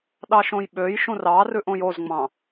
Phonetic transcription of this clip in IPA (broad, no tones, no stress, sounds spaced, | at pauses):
ɗ ɑ ʃ õ j ɓ ø j ʃ ũ r ɑ r ʉ ʔ õ j o z ŋ͡m ɑ̃